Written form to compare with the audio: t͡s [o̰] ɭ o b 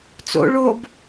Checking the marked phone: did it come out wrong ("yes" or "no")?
no